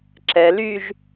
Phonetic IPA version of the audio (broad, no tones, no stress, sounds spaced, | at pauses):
ǁ ɛ l y ʒ